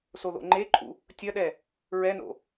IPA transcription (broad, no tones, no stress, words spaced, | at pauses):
soðo̰ŋ͡ǃeǃʼṵ | tʲɐɗɛ | ɹɛno̰